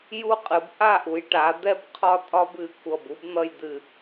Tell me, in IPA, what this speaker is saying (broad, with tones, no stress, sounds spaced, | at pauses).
j u˥ qʼ ɨ˩˧ b ʔ a˥˧ ʔ u˩˧ j ʈ a˩˧ d̪ ɛ˥ b qʰ ɒ˥ tʼ ɒ˥ b ɨ˩˧ kʷ ʌ˧˩ b u˥ b n̪ ʌ˥˧ j d̪ ɨ˧˩